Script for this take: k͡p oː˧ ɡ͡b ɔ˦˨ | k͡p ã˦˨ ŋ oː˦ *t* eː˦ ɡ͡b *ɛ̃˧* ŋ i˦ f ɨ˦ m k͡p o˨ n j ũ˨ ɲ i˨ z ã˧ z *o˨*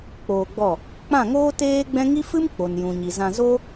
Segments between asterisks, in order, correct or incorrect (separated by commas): correct, incorrect, incorrect